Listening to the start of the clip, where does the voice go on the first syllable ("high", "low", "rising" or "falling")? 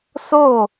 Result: falling